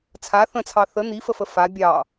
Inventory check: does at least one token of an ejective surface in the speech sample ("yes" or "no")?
no